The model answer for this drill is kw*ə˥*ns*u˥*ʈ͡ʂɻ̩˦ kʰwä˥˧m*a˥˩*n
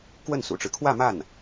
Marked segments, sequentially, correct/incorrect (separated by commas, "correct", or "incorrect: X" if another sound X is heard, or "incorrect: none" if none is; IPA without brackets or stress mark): incorrect: ə˥˩, incorrect: ṵ˨˩, correct